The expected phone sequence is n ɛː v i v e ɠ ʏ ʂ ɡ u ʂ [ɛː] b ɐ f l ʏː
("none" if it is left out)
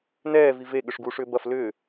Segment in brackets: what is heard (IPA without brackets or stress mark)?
ʏː